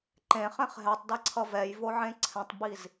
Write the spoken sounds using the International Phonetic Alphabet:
ǃẽχɛ̃χ ɦɛtˤdɛǀʰʌ vɛjvoʕẽ ǀʰɛ̃tˤbiz

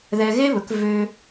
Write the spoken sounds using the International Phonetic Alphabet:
ðɛ˧ɣe˦βɵ˨˦k vø˦

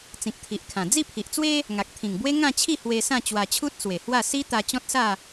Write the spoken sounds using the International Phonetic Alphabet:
t͡sĩ˨k̚t̪ʰi˨ʔkʰã˨˩ d͡zi˥˧pʰi˨ʔt͡swe˦ | ŋa˨k̚t̪ʰĩ˨˩ŋbwe˦ ŋã˥˧t͡ɕʰi˥˧ hwe˧sã˥˧ t͡ɕwa˧t͡ɕʰu˦t̚swe˨˩hwa˥˧ si˦t̪a˧ t͡ɕɔ̃˦t̚sa˥˧

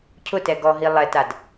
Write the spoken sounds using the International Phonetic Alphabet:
cʰʊtɛ ɡɔɦi lˠɛtad

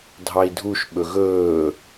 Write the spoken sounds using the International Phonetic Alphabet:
dʱɑi̯dʱuʃ ɓɵɣɵː

